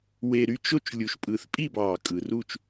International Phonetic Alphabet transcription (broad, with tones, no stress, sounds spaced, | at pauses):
w e˨˩ ɾ y˥˨ t͡ʃ o˥˨ t͡ʃ lʲ u˨˩ ʃ pʼ ɯ˨˩˦ θ pʼ i˥˨ b ɑː˨˩ kʼ ɯ˨˩ r u˥˨ t͡ʃ